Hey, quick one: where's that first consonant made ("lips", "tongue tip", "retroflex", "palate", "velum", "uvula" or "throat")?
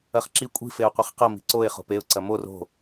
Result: uvula